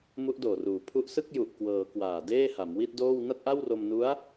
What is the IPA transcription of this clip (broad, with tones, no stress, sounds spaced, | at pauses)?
m u˦˥ ʔ d oː˨˩ r uː˩˦ pʰ u˦˥ ʔ s ɯ˥˩ k̚ j u˨˩ ʔ k w ɤː˩˦ k w aː˨˩ d eː˥˩ h a˩˦ m w i˥˩ t̚ d oː˥˩ w n a˥˩ t̚ ʔ a˥˩ w r o˧ m n u˦˥ a̯